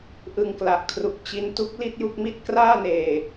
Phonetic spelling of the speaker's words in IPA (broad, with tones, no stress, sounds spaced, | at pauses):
ʔ ɯ˧ ŋ k l a˨˩ ʔ kʰ r u˨˩ k̚ t͡ɕ i˧ n t u˦˥ k̚ l i˥˩ t̚ j u˥˩ k̚ m i˥˩ t̚ k r aː˥˩ n eː˨˩